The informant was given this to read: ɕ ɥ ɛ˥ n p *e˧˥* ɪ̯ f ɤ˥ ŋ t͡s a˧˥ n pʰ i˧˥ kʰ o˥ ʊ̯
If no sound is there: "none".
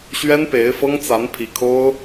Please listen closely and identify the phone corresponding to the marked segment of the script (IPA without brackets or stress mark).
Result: e˧˥